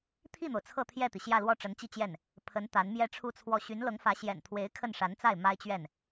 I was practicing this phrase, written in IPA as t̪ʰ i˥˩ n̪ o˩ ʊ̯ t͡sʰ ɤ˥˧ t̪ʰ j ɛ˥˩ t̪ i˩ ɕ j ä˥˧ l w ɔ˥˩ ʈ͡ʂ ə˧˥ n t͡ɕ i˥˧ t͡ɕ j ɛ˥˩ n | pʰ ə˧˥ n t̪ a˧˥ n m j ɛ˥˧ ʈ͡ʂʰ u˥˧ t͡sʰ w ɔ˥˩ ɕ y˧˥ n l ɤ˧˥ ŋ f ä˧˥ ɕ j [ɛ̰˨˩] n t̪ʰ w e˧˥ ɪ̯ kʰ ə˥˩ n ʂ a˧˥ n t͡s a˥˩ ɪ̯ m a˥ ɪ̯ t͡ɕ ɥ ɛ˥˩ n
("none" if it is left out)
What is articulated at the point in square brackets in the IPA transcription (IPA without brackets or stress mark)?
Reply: ɛ̰˨˩